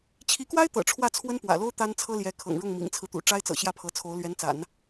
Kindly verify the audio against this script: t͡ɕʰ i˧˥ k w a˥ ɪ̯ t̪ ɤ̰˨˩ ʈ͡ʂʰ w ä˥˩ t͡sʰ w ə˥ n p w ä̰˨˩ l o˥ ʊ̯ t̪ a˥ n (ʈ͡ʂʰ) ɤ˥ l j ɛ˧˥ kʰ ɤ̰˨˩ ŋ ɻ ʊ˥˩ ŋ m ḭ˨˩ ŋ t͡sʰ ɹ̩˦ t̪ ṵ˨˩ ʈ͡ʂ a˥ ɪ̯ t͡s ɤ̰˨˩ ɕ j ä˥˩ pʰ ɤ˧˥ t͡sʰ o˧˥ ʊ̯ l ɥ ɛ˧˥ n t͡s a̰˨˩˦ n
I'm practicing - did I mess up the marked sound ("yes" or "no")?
yes